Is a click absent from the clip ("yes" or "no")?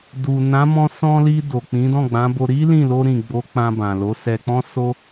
yes